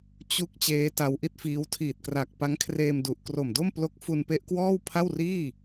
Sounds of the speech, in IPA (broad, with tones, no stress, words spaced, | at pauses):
t͡ɕu˦˥k̚ t͡ɕeː˦˥ta˧wʔi˥˩t̚fiː˦˥w tʰiː˨˩t̚kra˨˩k̚ pa˦˥ŋkʰreː˧m du˨˩ʔ kro˨˩mdo˥˩mplo˦˥k̚ fu˧npe˦˥ʔkwɔː˥˩w pʰa˥˩wriː˥˩